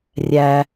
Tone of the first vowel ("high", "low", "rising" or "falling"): low